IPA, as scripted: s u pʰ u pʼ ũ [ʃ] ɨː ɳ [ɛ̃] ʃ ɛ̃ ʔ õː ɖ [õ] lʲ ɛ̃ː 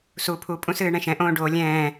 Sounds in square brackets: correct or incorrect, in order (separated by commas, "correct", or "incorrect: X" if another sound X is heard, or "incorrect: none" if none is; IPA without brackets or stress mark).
incorrect: s, correct, incorrect: o